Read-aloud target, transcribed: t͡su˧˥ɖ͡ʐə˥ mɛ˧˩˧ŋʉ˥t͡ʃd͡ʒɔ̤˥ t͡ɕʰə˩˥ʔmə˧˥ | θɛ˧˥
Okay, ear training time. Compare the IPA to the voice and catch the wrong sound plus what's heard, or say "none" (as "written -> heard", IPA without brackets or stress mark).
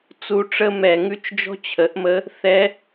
ɖ͡ʐ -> ʈ͡ʂ